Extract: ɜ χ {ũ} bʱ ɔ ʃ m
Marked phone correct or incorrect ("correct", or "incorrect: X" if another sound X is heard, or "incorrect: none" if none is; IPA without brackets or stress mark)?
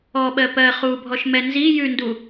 incorrect: u